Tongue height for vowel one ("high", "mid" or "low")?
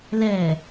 mid